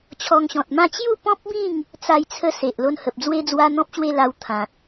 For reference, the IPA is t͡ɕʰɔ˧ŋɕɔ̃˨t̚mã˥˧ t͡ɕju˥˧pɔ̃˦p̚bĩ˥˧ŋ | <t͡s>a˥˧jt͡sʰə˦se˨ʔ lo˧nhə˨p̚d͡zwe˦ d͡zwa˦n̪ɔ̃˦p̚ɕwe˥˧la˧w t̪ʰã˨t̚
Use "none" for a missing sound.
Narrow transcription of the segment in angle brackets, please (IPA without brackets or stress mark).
t͡s